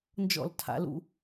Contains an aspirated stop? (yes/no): yes